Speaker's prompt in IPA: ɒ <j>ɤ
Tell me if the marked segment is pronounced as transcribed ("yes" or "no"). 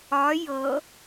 yes